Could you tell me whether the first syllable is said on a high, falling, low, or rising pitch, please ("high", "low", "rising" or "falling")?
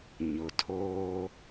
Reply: low